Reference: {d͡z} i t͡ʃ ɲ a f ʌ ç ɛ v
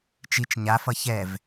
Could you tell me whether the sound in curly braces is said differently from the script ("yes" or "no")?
yes